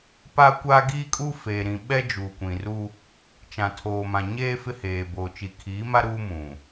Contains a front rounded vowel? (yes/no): no